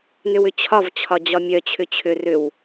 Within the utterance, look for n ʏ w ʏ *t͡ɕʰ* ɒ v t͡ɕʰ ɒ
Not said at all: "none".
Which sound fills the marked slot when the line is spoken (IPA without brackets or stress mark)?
t͡ɕʰ